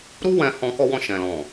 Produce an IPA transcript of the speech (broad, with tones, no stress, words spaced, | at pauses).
ɾu˦wɛ̃˧hɔ̃˧ kɔ˧wɔ̃˧ ʃɛ̃˨lɔ̃˨